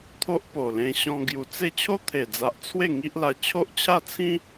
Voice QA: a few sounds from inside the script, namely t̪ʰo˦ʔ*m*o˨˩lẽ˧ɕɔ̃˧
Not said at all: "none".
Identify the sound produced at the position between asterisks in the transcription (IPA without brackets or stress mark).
p